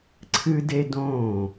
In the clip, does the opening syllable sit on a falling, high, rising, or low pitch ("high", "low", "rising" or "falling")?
high